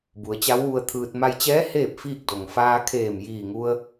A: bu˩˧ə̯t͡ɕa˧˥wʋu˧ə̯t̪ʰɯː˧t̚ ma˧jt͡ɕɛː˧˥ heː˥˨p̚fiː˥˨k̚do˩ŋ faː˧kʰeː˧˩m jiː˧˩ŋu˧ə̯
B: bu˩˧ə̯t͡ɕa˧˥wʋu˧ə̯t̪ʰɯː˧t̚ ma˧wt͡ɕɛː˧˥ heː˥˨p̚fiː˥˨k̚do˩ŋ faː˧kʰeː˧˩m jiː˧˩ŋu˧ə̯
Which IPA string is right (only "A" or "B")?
A